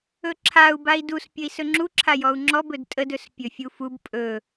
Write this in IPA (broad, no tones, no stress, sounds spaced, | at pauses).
ɵ ǁʰ a u̯ b a i̯ d u s pʲ ə i̯ s ɵ ŋ͡ǁ u ǁʰ a j ɔ u̯ ŋ͡ǁ ɔ b ɵ d tʼ ə d ɵ s pʲ ɵ fʲ u f u b pʼ ɵ